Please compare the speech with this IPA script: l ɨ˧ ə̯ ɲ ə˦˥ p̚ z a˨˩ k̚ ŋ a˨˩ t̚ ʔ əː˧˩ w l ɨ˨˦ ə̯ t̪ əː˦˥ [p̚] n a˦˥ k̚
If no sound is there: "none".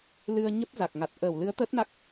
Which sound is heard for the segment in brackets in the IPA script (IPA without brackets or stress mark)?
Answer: t̚